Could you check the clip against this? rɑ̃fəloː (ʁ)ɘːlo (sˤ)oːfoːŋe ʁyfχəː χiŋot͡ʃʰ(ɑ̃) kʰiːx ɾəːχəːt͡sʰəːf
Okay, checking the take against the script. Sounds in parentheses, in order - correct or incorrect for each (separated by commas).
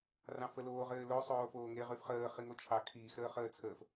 correct, correct, incorrect